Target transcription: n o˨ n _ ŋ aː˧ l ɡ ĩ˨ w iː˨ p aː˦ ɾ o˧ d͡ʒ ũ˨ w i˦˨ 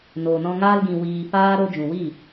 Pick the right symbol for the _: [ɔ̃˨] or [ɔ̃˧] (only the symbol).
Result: ɔ̃˧